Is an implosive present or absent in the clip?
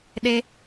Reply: present